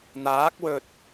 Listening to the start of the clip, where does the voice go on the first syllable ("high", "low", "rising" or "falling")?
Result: rising